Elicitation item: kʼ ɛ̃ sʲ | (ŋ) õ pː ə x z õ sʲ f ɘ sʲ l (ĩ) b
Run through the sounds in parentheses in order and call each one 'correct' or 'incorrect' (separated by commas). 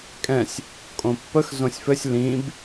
incorrect, correct